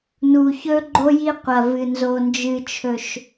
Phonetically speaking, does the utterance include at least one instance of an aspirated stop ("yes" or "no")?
yes